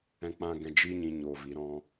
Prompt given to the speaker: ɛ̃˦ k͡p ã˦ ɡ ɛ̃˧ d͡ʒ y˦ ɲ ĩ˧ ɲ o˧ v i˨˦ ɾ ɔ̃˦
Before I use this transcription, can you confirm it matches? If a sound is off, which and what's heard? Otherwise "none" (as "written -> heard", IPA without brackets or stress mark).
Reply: y˦ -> i˦